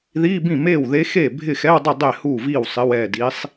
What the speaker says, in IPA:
ð iː˧˥˧ b ĩ˥˩ m eː˥˩ w ð e˧˥ x eː˥˩ bʱ ɪ˥˩ x ɛ˧˥˧ w dˤ ʊ˥˩ dˤ e˥˩ h uː˥˩ v iː˥˩ w sˤ ɪ˧˥˧ w ɛː˥˩ d i˧˥ sˤ

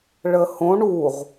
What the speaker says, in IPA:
ɭ ə h õ ɳ u ʁ

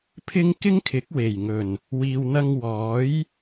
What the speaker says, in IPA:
pʰ ɪ˥ ŋ k ɪ˥ ŋ kʰ ɪ˨˥ k̚ w e˨˩ j ŋ ɵ˨˩ n | w iː˨ w n̪ ɐ˧ ŋ w ɔː˨˥ j

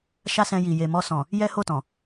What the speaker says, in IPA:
ʃ a˦ s ɛ̃˧ j i˨ j e˨ m ɔ˧ s ɔ̃˨ | j ɛ˦ h o˦˨ t ɔ̃˨

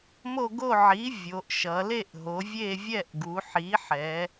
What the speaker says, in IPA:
m o˦˨ ɡ o˦˨ ʕ i˩˥ vʲ o˩˧ ʔ ʃ ʌ˩˧ l e˦˨ ʔ ɦ o˩˧ vʲ e˦˨ vʲ ɛ˦˨ ʔ ɡ u˩˧ ħ i˩˥ ħ ɛ˩˧

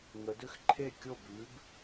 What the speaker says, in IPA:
ŋ ə˩˧ d ʏ˥˩ x ǃʰ e˥˩ kʲ o˥˩ b ʉ˩˥ b

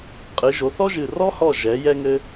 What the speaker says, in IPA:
qʼ ɨ˨˦ ʒ o˨˦ θ ɔ˥ ʒ ɨ˦˨ r ɔ˥ h ɔ˦˨ ʒ ɛ˨˦ j ɛ˥ ŋ ɘ˥

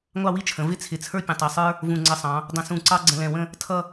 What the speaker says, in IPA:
ŋʷ ɑ˥˧ w i˥ t͡ʃʰ ə̃˩˧ v ɪ˥ t͡sʰ ɪ˧˩ t͡sʰ ə˞˥ pʲ ə̃˧˩ tˤ ɛ˧˩ sˤ ə˞˥ | v ũ˧˩ ŋ͡ǀ ə˧˩ sˤ ɑ̃˩˧ | dˤ ə̃˧ s ũ˧˩ ǀ ɑ˥ ɡ͡ǀ ə̃˧ l ɛ̃˧˩ w ə̃˥˧ | tʰ ʌ˥˧

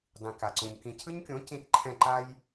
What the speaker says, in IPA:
dˤ ĩ˨ k a˨ ǀ ũ˨ ɲ k ĩ˨ cʰ ɯ˦ ɲ kʲ õ˨˦ c ĩ˦ t ǃʰ ɛ̃˦˨ ǃ a˦ j

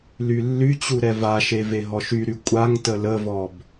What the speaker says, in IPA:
l y lː y t͡ɕ u ɾ ɛ v a ʃ e v e ɦ ɔ ʃ y ɾ y kʷʼ a ŋ t ə l ə v ɔ b

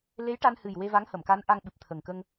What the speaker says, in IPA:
l e˧˥ j ʈ a˧ n h ɨ˨˩ j w e˧ v a˧˥ ŋ h ə˨˩˨ m k a˧˥ n ʔ a˧ ŋ ɓ ɨ˨˩ p̚ t̪ʰ ə˨˩ ŋ k ə˧ ŋ

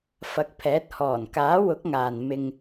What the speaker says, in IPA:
f ɐ˨˥ k̚ pʰ ɛː˨˥ t̚ h ɔː˨˩ n k aː˨˥ w ʊ˨˥ k̚ ŋ aː˨ n m ɪ˧ ŋ

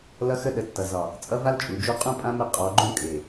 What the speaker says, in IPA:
l ʌ˦ x ə˦ ɗ ə˨˦ tː ʌ˨ z ɒ˨ | t͡sʼ ʌ˦ v a˦ l t͡ʃʼ u˨ d͡ʒ u˦ qʼ ũ˦ pʼ ã˦ m ə˦˨ qʼ ɔ˨˦ ɡ͡ǃ ũ˦ kʼ e˨

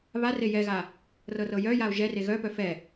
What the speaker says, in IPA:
β a r e j ɛ ɣ a | r ɤ r ɤ j œ j a o̯ ʒ ɛ r e ɣ œ p œ f ɛ

